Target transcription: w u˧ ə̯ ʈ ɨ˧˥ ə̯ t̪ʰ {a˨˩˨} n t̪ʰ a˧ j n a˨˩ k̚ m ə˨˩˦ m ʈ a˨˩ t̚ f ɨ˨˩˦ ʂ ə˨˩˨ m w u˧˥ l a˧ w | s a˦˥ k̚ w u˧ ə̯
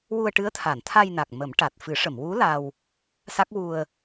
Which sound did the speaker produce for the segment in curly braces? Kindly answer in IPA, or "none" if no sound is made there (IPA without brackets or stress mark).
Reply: a˨˩˨